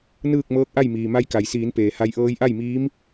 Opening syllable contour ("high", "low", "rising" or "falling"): falling